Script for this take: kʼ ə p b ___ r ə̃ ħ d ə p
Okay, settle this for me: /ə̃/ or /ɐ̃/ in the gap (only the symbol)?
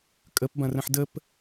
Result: ɐ̃